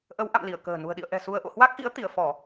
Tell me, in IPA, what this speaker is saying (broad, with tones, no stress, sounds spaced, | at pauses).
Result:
ʔ ə˨˦ w ʔ a̰˧˨ m l i˧˩ ə̯ k ə̤ː˨˩ n ṳ˨˩ ə̯ ɗ ḭ˧˨ ə̯ ʔ ɛ̤˨˩ s u˧ ə̯ ʔ o̰˧˨ h w a˦˥ k̚ ʔ ḭ˧˥ ə̯ t̪ i˧˩ ə̯ f ɔ˧˩˨